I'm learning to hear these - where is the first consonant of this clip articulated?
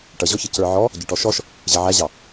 retroflex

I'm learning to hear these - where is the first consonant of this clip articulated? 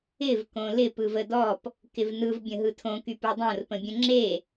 lips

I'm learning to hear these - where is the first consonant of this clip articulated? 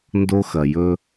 tongue tip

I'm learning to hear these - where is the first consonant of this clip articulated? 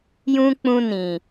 palate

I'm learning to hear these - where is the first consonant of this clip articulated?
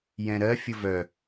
palate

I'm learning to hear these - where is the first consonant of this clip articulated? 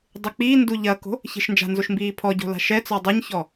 tongue tip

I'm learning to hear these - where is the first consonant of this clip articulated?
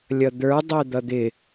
tongue tip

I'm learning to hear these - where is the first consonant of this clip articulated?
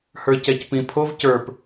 throat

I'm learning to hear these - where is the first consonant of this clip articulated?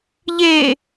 palate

